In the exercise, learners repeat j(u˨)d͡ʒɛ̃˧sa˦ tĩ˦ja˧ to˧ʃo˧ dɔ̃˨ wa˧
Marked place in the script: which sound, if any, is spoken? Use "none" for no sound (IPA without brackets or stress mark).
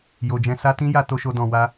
o˨